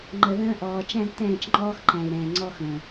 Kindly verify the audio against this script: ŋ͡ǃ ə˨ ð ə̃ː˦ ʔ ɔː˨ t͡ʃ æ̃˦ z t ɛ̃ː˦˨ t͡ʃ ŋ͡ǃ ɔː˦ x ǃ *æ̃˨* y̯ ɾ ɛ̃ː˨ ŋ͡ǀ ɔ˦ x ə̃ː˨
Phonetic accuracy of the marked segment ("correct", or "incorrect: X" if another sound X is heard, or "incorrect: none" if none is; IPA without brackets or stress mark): correct